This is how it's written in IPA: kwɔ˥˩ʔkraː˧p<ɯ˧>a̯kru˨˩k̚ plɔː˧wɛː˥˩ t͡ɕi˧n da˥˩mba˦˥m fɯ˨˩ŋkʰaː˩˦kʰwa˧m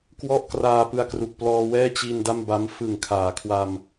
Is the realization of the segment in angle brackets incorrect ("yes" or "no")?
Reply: no